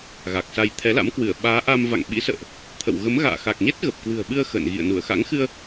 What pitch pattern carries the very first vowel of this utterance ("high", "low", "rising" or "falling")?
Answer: low